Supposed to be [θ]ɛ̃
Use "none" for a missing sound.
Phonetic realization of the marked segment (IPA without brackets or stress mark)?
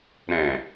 ɾ